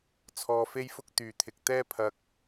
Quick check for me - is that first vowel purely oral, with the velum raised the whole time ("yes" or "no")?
yes